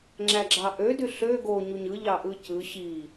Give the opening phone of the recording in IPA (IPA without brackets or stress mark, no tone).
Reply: ŋ͡ǁ